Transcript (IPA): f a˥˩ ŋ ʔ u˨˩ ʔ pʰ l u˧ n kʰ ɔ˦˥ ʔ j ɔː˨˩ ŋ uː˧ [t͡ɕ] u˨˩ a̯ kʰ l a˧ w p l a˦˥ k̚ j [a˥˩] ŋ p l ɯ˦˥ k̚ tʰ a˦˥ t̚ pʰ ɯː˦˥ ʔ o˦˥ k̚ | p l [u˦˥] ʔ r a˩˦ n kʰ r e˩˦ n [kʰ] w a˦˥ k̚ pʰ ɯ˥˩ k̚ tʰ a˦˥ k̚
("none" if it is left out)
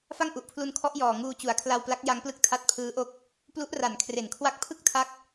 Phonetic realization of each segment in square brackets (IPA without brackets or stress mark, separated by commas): t͡ɕ, a˦˥, u˦˥, kʰ